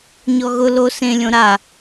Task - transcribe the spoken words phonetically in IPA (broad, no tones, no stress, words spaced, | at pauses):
ɲɔɣʊ lo sẽ lʲõɾa